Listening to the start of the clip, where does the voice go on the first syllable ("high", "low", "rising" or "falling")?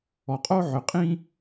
low